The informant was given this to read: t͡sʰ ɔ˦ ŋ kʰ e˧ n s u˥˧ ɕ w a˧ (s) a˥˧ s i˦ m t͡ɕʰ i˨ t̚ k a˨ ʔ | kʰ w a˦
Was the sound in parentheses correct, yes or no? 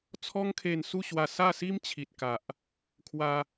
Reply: yes